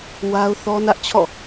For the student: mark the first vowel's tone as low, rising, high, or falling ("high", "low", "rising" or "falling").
high